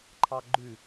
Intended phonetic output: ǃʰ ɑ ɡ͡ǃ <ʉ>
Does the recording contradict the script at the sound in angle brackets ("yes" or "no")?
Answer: no